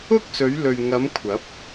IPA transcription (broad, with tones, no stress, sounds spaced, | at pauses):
ʊ˥ k̚ s ɵ˨˧ ɥ l ɵ˨ ɥ ŋ ɐ˨˧ m kʷʰ ɐ˨˥ p̚